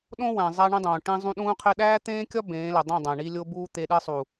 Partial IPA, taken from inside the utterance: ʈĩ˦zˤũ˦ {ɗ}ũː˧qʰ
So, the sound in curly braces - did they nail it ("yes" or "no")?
yes